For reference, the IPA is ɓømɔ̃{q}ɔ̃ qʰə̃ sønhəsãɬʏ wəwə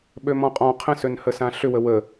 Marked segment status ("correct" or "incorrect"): incorrect